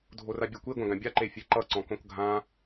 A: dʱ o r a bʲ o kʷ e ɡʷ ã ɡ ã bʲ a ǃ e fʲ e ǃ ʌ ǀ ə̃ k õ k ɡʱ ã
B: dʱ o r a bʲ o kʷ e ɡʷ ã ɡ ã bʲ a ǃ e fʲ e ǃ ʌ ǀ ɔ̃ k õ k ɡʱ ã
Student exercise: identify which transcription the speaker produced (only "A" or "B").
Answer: B